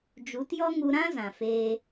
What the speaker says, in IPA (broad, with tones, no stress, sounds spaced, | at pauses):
d͡ʒ u˨˦ t j ɔ˦ ŋ u˧ ɾ ã˦ z ã˨ f eː˧